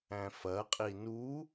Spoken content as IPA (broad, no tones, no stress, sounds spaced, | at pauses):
æ̃ f ɐ qʼ i n u